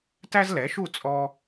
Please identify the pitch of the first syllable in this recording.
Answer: high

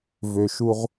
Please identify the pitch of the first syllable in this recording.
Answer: low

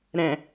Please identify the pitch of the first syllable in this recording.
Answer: low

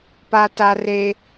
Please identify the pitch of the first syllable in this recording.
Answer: high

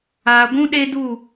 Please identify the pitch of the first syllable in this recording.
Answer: low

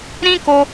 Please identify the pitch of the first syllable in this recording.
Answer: high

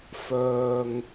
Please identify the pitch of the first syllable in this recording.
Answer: low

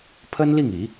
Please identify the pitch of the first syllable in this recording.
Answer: high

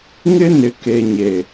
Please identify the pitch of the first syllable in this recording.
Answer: high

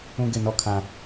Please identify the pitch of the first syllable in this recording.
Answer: high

